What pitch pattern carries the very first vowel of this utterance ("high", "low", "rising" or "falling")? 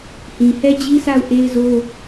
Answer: low